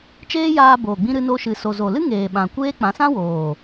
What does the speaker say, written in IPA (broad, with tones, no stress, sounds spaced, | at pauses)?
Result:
t͡ʃ eː˦ j aː˧ b oː˨ ɡ͡b ĩ˧ ɾ ɨ˧ n o˧ ʃ ɨ˨ s o˨ z o˨ l ɨ˦ ŋ eː˨ ɓ ã˨ kʷ eː˦ k͡p ã˨˦ s ã˦ w oː˨